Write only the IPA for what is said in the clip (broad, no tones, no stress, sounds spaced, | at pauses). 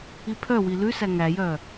i pʰ œ w i l ʉ s æ ŋ æ j œ